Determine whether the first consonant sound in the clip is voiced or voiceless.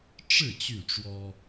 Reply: voiceless